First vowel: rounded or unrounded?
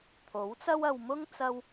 rounded